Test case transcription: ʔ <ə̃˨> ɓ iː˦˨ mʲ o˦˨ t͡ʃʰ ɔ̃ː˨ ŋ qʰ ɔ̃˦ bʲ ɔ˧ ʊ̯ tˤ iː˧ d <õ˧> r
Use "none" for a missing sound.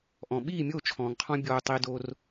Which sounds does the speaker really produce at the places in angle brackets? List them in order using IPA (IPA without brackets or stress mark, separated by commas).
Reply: ɔ̃˨, o˧